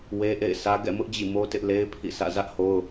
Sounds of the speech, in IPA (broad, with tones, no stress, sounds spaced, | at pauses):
w e˦ ʔ ḛ˦˨ ɪ̯ sʰ ä˦ ɡ ɛ̰˦˨ m ʊ˦ ʔ d͡ʑ ḭ˦˨ m o˦ t ɪ˦ ʔ l e˦ ɪ̯ pʰ ḭ˦˨ s ä̰˦˨ z ä˦ ʔ h o˦ ʊ̯